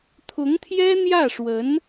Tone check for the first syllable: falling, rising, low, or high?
rising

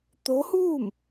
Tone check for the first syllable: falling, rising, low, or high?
rising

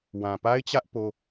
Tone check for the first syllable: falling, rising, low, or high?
low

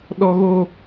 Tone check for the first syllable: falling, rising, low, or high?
high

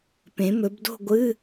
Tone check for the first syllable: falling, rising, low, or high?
rising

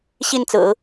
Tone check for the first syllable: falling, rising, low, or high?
falling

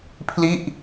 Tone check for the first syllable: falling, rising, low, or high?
falling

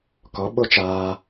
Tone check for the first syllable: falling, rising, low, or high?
rising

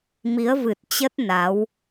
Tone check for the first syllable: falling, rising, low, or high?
rising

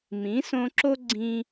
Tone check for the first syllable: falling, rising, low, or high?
rising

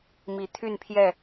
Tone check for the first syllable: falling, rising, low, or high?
rising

